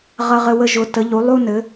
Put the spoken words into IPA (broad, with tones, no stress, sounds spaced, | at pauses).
ʁ ɐ˦ ʁ ɘ˦ w ə˦ ʒ ʊ˨˦ t ə˨˦ ʎ u˨˦ lˠ u˦ n ɘ˨˦